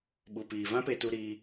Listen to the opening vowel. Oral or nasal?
oral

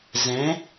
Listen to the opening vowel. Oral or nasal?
nasal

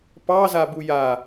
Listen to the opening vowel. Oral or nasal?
oral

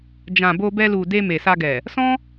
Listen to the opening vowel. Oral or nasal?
nasal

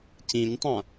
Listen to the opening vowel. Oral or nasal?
nasal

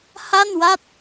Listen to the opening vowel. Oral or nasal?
oral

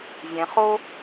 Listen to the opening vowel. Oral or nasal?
nasal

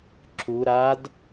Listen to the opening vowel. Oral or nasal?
oral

